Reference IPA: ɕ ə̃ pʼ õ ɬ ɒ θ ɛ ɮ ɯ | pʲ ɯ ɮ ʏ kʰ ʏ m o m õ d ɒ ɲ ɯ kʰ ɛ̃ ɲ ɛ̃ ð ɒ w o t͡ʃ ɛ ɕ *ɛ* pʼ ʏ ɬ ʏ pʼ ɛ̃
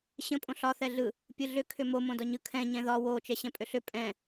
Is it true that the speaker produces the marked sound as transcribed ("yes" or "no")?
no